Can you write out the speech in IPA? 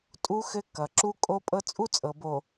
tʼu˦xɘ˦ kʌ˨ ǁu˦kʼo˦pʼɤ˦ t͡sʼu˦t͡sʼɤ˨bo˨

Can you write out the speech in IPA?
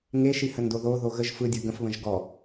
ŋeʃihəndo ðo ðoɣəʒ fɯdʲɯ ɡə̃fβə̃ʒ ɡɔ

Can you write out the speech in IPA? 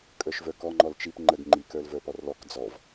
kʼə˞ʃvə˞kɔ ŋ͡ǃɔlt͡ʃip ŋ͡ǃəɡ ŋ͡ǃik ə˞lvə˞pɔrlɔk d͡zɔv

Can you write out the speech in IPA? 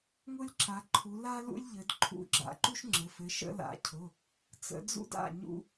ŋʊ˥lʲǁa˨˦ǃʰu˨˦ la˥ lṵ˥lʲʎɘ˨˦d ǃʰṵ˨˦ɡ͡ǁa̰˨˦ǃu˥ʃ ŋ͡ǁɘ˩˧˩fɘ˨˦ʃə̰˥ la̰˨˦cʰʊ˩˧˩ | t͡sə̰˨˦ d͡zṵ˥da̰˩˧˩ ɲṵ˥

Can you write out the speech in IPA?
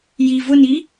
ji vʊni

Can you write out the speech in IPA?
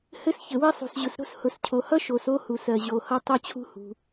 hɘ˥sçɘ˨wɘ˥sˤṳ˨s ʑʊ˨sɾo̤˥s hʊ˨scʰo˨hʌ˥ ʃo˨s o˥hu˨s ɜ˨ ʑo˨hʌ˥ tˤo˥t͡ɕʰṳ˥ hṳ˨

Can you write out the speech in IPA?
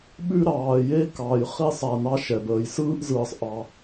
ɓʉ˦ ɾɑː˨je˥kɑ˨j χi˦sˤa˨ nɑ˦ʃɛ˩ bəː˩jsɯː˦ʔ zɯː˨sˤʔɑ˨

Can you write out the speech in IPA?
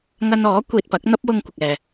ŋɐ˧nɔː˨˥ kʷiː˨t̚pɐ˨˥k̚ n̪ɐ˥p̚wʊ˧ŋ kʷɪ˨k̚ɛː˨

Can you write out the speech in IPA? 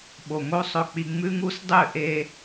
ɓo˨ŋo˦ sˤɵ˦k͡pi˦ ŋ͡mʉ˦ŋu˦sdˤʉ˦˨ ʔe˦

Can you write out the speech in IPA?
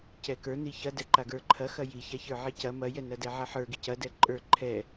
cɛkə˞ niçɐdɛ ǃaɡə˞ǃʰɐxɐ jiça çə˞ʕicɐ mɐjɛnɐ dɛʕɐħə˞ɡi cɐ dɛǃʼə˞ ǃʰɛ

